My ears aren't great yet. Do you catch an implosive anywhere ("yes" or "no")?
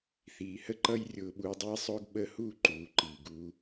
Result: yes